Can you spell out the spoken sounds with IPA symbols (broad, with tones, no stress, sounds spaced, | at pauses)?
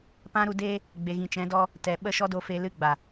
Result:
p ã˦ ɾ u˧ d eː˦ | ɡ͡b e˨ ɣ ĩ˨ t͡ʃ ɛ̃˨˦ d ɔ˦ | t ɛ˨ ɓ ə˦˨ ʃ ɔ˦ d o˧ f e˧ l ɨ˧ ɡ͡b a˨